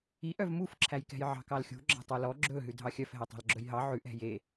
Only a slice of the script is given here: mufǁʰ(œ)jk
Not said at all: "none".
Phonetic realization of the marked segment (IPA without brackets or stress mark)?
æ